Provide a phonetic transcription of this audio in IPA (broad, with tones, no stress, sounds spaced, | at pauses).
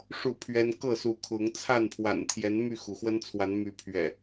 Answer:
ʂ u˥˨ pʰ ɥ ɛ˦ n k ɤ˥˨ s u˨˦ kʰ ʊ˨˦ ŋ t͡sʰ a˥˨ n pʰ w a̰˨˩ n t̪ʰ j ɛ˨˦ n m y˥˨ x u˩ x w ə˦ n t͡sʰ w a˨˦ n m y˨˦ pʰ ɥ ɛ̰˨˩